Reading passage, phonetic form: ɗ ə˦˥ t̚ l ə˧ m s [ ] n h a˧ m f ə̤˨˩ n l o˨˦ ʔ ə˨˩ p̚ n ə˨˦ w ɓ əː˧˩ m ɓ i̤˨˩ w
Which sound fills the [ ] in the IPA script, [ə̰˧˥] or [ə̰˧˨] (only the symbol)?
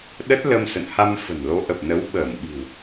ə̰˧˨